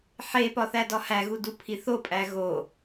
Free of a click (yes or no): yes